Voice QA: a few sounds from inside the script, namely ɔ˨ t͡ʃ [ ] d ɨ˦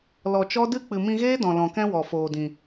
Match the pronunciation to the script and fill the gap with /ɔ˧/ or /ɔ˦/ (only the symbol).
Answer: ɔ˦